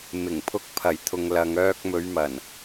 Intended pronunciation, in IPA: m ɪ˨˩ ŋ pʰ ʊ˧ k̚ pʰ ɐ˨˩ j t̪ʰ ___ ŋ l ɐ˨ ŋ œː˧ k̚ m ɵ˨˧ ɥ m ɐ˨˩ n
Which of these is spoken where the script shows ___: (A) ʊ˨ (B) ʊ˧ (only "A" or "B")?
A